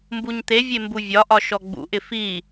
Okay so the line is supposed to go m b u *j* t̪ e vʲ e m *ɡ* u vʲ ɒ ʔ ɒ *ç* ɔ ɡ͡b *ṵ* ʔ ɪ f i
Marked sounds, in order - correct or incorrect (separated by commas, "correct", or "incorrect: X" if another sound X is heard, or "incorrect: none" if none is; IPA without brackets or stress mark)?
incorrect: ɲ, incorrect: b, incorrect: ʃ, correct